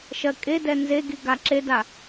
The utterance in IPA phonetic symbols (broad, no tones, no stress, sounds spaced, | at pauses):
ʃ ɜ kʼ e d ɛ n z e ɡ i ɡ a ǁ e d a